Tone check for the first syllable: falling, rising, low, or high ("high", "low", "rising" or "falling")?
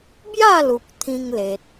falling